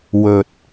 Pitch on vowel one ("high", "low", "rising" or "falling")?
low